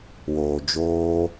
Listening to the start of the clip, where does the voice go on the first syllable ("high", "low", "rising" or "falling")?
low